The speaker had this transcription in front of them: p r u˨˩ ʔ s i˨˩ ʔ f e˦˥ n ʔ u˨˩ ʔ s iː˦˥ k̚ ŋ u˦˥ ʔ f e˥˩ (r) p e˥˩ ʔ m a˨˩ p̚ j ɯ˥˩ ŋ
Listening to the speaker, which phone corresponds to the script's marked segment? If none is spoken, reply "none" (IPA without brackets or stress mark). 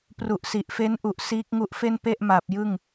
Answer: n